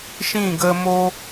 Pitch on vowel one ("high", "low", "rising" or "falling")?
falling